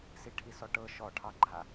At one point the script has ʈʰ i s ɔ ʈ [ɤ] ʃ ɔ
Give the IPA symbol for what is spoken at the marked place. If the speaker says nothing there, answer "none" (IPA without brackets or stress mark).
ɤ